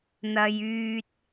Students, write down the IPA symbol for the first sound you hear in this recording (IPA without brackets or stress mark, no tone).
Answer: n̪